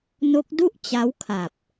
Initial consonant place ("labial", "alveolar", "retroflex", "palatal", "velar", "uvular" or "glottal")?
alveolar